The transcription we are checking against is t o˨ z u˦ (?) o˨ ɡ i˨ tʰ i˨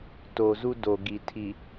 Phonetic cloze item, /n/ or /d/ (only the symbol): d